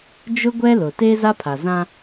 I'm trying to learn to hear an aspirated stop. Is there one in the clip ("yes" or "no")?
yes